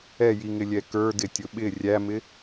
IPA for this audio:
ɛ j i ŋ ɪ lʲ ɛ k ə˞ d ɪ tʲ ʊ ɓ ɪ rʲ æ m ɪ

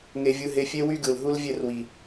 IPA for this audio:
ŋ e˧ vʲ ɯ˧ ɦ e˧ fʲ e˦ w y˦ ɡ ɯ˨ l ɦ u˦ l vʲ e˦˨ r w i˨

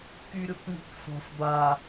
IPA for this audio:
k y ɾʲ o k ŋ i̤ k s ɔ̤ s b a

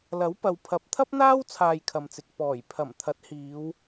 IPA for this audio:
l ɐ˨˥ w p ɐ˨ w pʰ ɐ˨˥ p̚ t̪ʰ ɐ˥ p̚ n̪ aː˥ w t͡sʰ aː˧ j kʰ ɐ˨ m t͡s ɪ˨ k̚ p ɔː˨˩ j pʰ ɐ˨˩ m t̪ʰ ɐ˨˥ t̚ h iː˨˧ w

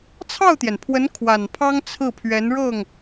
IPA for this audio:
t͡sʰ ɑ˥˩ ʊ̯ t̪ j ɛ˩ n pʰ w ə˧˥ n kʰ w a˨˩ n pʰ ɑ˥ ŋ t͡sʰ ɹ̩˥˩ pʰ ɥ ɛ˧˥ n ɻ ɤ˥˩ ŋ

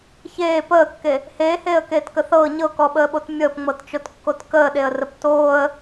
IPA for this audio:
ç eː p əː kː e | h eː h eː ə̯ k eː t k ə θ ɤː ɲ ɤ k ɔ ɓ əː ɓ o t mʲ əː p ŋ͡m ɤ t t͡ʃ o t kː o t k əː ɗ e ə̯ r ə p t oː ə̯

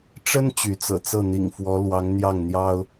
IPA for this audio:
ʈ͡ʂ ə˥ n t͡ɕ y˧˥ t͡s ɤ̰˨˩ t͡s ɤ˥˩ n̪ ḭ˨˩ ŋ f w ɔ˧˥ l w ɑ˧˥ ŋ n̪ j ɑ˥˩ ŋ n̪ j ɑ˥ ʊ̯

